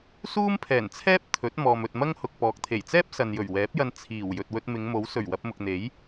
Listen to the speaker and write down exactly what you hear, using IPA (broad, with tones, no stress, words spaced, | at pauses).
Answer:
suː˥mpʰɛː˨˩nt͡sʰɛː˥p̚ t̪ʰɵ˨˥t̚ mɔː˨mɵ˨t̚mɐ˥ŋhʊ˨k̚ pɔː˨k̚t̪ʰe˨˩j t͡sɛː˥p̚ sɐ˨njɵ˨˩ɥwɛː˨˥p̚jɐ˧n t͡sʰiː˨˩w jɵ˨t̚wɵ˧t̚mɪ˨˧ŋmo˨˥w sɵ˨˩ɥwɐ˧p̚mʊ˨k̚n̪e˨˥j